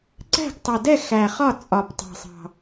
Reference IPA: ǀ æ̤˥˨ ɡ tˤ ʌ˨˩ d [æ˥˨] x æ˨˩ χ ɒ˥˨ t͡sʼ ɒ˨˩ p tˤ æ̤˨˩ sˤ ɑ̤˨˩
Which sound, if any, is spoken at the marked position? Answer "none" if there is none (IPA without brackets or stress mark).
ɛ˥˨